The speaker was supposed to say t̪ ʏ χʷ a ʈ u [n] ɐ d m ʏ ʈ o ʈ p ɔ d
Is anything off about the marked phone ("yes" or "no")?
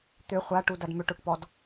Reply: yes